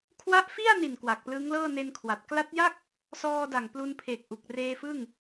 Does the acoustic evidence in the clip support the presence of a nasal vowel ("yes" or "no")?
no